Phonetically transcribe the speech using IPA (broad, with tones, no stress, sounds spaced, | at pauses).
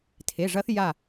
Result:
tʰ e˩˧˩ ʐ ɐ˧˥ θ j a˥˩